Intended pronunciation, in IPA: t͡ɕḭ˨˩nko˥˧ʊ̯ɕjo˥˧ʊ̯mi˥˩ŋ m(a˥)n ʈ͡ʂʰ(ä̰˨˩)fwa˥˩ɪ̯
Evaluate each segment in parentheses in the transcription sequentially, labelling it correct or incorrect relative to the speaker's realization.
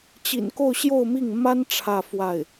correct, incorrect

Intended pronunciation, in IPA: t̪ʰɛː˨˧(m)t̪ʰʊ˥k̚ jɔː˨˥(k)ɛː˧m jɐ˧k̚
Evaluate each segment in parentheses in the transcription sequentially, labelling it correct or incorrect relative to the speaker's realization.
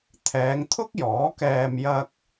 incorrect, correct

